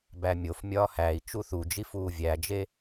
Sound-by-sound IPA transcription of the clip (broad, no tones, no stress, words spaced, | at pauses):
bæmʲofmʲɒː hæi̯ t͡ʃuθud͡ʒi fuːvʲæd͡ʒe